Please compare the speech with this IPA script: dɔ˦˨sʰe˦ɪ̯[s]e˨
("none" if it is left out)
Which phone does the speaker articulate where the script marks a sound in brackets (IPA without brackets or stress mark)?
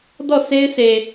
s